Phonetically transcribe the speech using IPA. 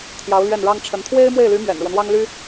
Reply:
t̪ʰ j ɑ˧˥ ʊ̯ l ɥ ɛ˥˩ n ɻ ɑ˥ ŋ ʈ͡ʂʰ ə˧˥ n t̪ʰ w e˥ ɪ̯ m w e˥˩ ɪ̯ l y˧˥ m ɥ ɛ̰˨˩ n ɻ w ə˦ n w ɑ˥ ŋ l y˥

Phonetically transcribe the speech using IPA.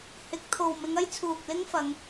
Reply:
h ɪ˨˥ k̚ t̪ʰ o˨ w m ɪ˨˧ ŋ ɐ˥ j t͡sʰ uː˨ k̚ l ɪ˥ ŋ f ɐ˨˧ ŋ

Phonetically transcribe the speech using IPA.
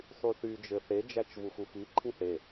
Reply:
sˤ y θ y d͡ʒ ɘ θ e d͡ʒ æ t͡ʃ v u x u x i ǃʰ ĩ θ e

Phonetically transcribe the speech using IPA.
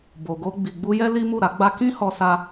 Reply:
b o˨ ɡ o˧ ɡ͡b i˨ ɡ͡b u˧ j ɛ˦ l i˦ m u˦˨ ɾ a˨˦ ɡ͡b a˦ k ĩ˦ h ɔ˧ s a˧

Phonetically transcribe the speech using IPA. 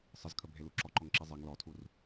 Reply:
sˤ ə z kʰ ə bʱ e l u ǁ ɔ ǃ ɔ ŋ ǁ i zˤ e ŋ l ɔ tʰ u r

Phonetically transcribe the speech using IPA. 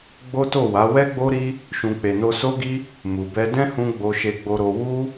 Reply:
ɡ͡b o˦ t o˦˨ w a˨˦ w ɛ˦ ɡ͡b o˦ ɾ i˦ | ʃ ũ˧ k͡p e˨ n o˧ s o˦ ɡ i˦ | m u˨ b ɛ˧ d ɛ̃˦ h ũ˧ ɡ͡b o˧ ʃ e˧ ɡ͡b o˧ ɾ o˧ w u˦

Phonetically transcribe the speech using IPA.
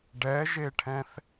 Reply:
ɖ ɛ ʒ e ʈʰ ɛ̃ θ

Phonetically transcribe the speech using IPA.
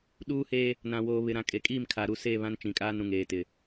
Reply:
ɗ uː˦ h e˦ | n ã˨ w oː˨ β ɪ˨ ɾ ã˨ kʼ e˨ kʼ iː˦˨ m kʰ a˨ ɾ u˦˨ s e˦˨ β ã˦ n t͡ʃ ĩ˨ kʼ aː˦ n ɾ ũ˨ ŋ eː˨ t ɪ˨

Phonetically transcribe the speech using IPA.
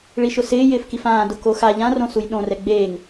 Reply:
ɭ i ʃ ʊ s ɪː j ɪː f k i f ãː d ʊ k o x a ʎ ã r õ s u j ɗ õ r ɛ ɡ͡b eː ŋ

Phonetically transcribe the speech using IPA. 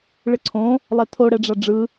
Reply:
ɭ ɪ ǀʰ õ | lˠ ɛ tʰ o ɽ ɛ ɖ͡ʐ a ɖ͡ʐ ɯ

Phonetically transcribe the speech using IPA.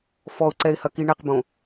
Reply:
f ɔ ʊ̯ ǀ ɛ ɪ̯ h ɐ k i ɳ ɛ q b õ

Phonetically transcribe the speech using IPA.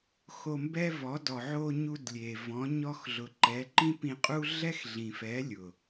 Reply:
x o˧ m b ɛ˦ v ɔ˨˦ d ɔ˨ ʕ o˧ ɲ u˧ d lʲ e˨ v ɔ̃˨˦ ɲ ɔ˧ x ɮ ʊ˨ ǃ ɛ˨˦ ǃ ĩ˦ p ĩ˧ qʼ u˦ ɮ ɛ˦ x ɮ ĩ˨ f ɛ˨˦ lʲ ʊ˨

